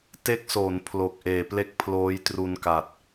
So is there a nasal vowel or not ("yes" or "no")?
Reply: no